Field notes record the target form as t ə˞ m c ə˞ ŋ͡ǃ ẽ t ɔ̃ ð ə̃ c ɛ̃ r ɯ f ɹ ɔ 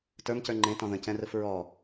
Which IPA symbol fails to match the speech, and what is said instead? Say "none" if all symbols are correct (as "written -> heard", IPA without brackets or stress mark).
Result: none